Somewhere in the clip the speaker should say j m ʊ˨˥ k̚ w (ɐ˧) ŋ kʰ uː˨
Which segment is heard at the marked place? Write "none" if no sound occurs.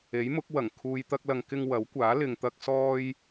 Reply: ɐ˨˩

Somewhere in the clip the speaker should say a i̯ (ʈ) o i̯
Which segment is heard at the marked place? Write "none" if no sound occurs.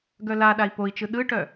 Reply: p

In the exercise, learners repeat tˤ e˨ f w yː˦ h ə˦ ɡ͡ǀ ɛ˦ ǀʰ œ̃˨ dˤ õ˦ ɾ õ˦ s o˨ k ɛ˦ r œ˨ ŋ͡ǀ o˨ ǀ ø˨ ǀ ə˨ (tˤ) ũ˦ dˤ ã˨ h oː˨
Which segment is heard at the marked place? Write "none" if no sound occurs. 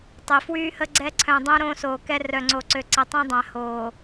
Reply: tˤ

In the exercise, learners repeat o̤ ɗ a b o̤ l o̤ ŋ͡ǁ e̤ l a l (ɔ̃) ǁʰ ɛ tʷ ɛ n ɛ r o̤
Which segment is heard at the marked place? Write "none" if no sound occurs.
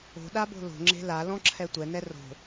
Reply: ɔ̃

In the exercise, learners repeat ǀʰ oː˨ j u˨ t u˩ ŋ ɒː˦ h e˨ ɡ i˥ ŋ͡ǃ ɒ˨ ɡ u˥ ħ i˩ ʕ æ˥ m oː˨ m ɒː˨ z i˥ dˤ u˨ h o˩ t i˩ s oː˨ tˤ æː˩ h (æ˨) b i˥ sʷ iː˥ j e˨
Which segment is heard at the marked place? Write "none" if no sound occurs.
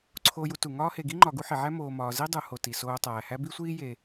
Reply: æ˦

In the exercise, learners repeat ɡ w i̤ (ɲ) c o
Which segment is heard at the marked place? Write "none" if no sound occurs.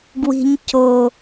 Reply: ɲ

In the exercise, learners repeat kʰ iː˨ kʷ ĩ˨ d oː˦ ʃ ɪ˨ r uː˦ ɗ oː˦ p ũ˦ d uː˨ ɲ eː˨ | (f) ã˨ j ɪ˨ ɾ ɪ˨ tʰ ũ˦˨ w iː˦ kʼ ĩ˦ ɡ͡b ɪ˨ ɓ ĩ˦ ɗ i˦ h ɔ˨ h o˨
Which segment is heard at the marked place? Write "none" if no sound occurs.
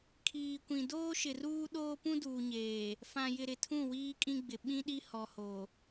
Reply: f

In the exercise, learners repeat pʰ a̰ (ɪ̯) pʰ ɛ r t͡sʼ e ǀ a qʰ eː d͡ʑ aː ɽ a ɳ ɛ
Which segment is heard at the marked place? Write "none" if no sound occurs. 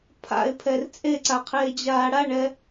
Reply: ɪ̯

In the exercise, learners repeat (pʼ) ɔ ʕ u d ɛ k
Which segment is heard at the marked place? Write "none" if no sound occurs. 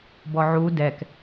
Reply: b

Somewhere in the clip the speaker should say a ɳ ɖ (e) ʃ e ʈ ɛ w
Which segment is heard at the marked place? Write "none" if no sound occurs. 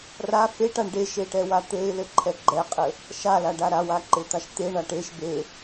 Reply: e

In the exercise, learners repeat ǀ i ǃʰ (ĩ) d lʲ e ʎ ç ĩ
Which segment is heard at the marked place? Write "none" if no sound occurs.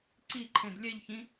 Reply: ẽ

